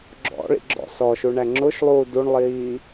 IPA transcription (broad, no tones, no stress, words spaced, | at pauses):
ɡ͡ǁɔ̰ɭḭ ɡ͡ǁɔ̰sɔʃu ɳæŋ͡ǁʊʃlˠuː duɳlˠiː